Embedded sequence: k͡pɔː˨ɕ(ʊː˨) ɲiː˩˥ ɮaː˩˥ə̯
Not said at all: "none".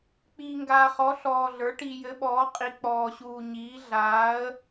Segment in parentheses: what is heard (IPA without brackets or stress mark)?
uː˨